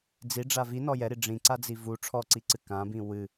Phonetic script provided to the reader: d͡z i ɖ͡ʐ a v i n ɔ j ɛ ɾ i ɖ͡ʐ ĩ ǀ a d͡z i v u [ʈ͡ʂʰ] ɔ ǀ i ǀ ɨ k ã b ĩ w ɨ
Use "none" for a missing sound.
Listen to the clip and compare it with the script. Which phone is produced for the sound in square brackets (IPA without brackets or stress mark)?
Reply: ʈ͡ʂʰ